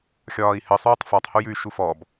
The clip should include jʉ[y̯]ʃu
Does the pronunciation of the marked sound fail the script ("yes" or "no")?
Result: no